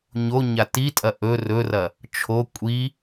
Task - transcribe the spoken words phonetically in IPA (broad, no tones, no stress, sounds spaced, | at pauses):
ɲ o ɲ a t i tʼ ɐ ʔ ɵ r ɵ r ɐ | t͡ʃʰ o kʷʼ i